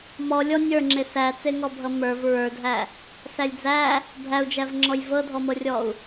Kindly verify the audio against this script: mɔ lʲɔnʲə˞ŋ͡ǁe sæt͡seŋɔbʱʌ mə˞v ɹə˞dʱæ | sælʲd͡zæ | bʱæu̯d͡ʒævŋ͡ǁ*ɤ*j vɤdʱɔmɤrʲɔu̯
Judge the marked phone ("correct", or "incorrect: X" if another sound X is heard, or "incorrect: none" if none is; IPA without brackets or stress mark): incorrect: ɔ